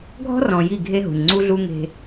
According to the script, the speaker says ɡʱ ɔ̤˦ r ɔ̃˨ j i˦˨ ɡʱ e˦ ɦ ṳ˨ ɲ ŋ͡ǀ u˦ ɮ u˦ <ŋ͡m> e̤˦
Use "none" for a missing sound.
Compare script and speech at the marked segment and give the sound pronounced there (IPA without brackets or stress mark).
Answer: ŋ